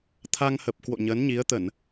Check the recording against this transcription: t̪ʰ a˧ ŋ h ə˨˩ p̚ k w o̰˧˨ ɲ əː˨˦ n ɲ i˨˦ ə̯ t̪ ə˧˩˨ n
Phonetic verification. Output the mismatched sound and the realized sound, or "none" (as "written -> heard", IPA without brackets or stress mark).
none